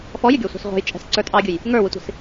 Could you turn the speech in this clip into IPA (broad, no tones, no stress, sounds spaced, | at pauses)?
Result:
f ɔ j ɪ ɡʲ ɔ sʷ ɑ̤ s ʁʷ ɑ̤ j t͡ʃʼ ɛ̤ s ǀ ə˞ tʼ ɑ ɡʲ ʊ j | ŋ ə˞ w ɪ tʷ i̤ s